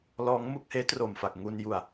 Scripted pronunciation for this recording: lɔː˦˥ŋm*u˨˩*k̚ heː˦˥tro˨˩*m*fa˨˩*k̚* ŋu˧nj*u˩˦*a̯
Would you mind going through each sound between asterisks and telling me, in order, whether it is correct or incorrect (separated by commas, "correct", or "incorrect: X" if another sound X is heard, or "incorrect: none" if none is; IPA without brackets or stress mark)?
incorrect: u˥˩, correct, correct, incorrect: u˨˩